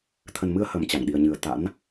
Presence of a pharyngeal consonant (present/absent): absent